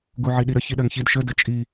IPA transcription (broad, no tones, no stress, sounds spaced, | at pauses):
ɡ u ʕ i ɗ i ɾ ə ç i ɗ ɜ ŋ ç i d ʃ ə d ə t͡ʃʼ i